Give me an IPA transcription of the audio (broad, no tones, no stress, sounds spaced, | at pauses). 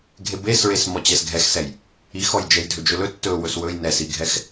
ɡʱ e b e s ɹ e s m ɔ t͡ɕ ɛ s ɡʱ ɛ x s ɛ j | i x ɔ j d͡ʒ ɛ j dʱ ɵ d͡ʒ ɵ l ɵ tː ɵ w ɵ s w ɵ j n ɛ s i ɡʱ ɛ x